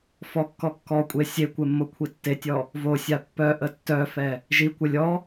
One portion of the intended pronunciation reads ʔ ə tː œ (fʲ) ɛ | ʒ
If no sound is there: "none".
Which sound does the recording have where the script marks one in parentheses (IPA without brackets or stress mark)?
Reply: f